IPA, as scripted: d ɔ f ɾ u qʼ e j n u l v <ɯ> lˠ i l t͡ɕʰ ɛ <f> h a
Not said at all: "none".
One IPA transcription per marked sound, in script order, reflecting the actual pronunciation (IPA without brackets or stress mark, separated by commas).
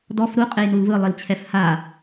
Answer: ɯ, f